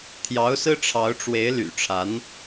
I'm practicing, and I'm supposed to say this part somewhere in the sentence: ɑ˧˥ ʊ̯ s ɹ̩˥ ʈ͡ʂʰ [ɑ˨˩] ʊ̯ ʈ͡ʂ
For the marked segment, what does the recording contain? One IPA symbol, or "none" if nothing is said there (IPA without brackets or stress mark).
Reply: ɑ˧˥